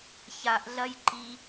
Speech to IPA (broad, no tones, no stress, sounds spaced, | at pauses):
ç a ʔ ɮ ɐ j ǃ i